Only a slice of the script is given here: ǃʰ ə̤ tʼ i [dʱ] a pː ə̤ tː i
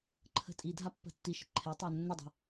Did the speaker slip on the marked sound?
no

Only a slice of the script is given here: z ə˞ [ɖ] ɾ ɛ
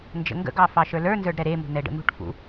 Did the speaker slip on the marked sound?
no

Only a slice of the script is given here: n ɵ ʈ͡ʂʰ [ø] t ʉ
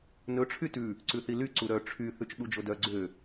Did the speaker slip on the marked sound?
yes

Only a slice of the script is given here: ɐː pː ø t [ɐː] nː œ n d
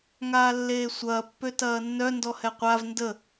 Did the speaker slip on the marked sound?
no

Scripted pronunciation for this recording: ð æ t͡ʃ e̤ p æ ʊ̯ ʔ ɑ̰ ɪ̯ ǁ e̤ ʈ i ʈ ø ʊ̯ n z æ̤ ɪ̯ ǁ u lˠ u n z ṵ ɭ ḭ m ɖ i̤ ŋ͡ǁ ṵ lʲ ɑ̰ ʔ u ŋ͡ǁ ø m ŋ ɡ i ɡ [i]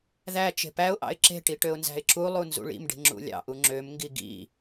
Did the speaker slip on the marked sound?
yes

